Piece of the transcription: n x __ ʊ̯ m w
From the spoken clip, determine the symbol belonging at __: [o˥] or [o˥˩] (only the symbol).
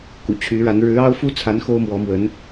o˥